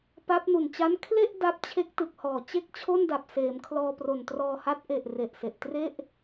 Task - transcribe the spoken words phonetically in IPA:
p a˦˥ p̚ n u˨˩ n t͡ɕ a˦˥ n kʰ l e˥˩ ʔ d a˦˥ p̚ t͡ɕʰ e˦˥ k̚ t ɯ˨˩ k̚ h ɔː˨˩ t͡ɕ e˥˩ k̚ t͡ɕʰ o˥˩ n d a˨˩ p̚ s eː˩˦ m kʰ l ɔː˧ p r o˨˩ n t r ɔː˧ h a˦˥ t̚ ʔ e˨˩ ʔ r e˨˩ ʔ s e˨˩ ʔ t r e˥˩ ʔ

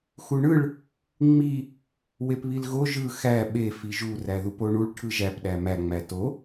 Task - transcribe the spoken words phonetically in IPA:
x u ɳ ɯ ɭ | ŋ͡m i | w e p β i l ɣ o ʒ ɯ x æ ɓ e f i ʒ u r æ ð u p o ɳ u ɭ ʈʰ ɯ ʒ æ p ɗ æ m æ ŋ͡m æ t o

